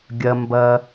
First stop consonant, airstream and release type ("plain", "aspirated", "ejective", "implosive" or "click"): plain